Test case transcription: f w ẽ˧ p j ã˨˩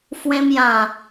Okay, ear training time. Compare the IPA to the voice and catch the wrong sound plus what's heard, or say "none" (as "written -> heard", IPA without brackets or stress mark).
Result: p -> m